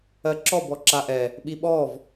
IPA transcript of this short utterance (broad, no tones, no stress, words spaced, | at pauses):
ɜǁɔb ɔǁaʔɛ | ɓiɓɔv